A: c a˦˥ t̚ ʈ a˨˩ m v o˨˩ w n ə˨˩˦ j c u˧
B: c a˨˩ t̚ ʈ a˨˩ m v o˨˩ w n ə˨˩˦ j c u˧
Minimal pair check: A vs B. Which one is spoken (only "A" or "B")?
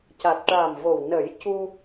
B